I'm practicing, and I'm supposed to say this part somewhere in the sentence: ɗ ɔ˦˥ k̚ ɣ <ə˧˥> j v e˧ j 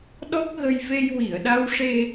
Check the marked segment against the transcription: incorrect: ə˧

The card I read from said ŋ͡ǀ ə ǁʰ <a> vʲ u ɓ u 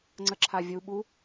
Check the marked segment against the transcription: correct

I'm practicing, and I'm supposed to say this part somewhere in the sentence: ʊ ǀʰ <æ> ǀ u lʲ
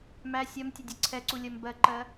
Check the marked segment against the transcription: incorrect: ɛ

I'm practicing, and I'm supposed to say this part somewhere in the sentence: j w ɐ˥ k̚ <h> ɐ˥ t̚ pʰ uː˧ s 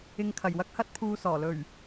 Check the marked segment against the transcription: correct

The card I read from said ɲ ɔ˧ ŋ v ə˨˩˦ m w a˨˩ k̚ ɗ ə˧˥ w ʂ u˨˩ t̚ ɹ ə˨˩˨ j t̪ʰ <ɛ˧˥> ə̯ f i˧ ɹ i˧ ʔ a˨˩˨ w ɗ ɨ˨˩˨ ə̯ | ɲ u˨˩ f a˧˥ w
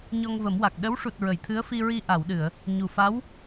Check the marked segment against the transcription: incorrect: ɨ˧˥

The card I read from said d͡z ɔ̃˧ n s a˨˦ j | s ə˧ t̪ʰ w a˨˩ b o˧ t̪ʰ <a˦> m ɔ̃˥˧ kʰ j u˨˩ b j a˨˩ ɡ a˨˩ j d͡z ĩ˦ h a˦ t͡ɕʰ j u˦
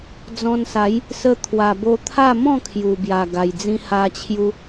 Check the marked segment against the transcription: incorrect: a˥˧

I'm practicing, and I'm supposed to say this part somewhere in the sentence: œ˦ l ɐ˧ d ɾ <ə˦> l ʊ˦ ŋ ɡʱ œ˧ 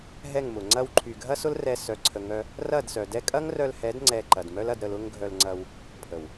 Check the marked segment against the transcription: incorrect: ə˧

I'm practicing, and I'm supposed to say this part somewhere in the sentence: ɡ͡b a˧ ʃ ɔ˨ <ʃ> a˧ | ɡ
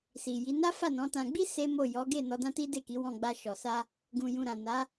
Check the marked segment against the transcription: incorrect: s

